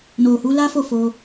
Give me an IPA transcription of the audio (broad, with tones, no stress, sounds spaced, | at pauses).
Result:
n o˨ h u˨˦ l a˦ f o˦˨ f o˧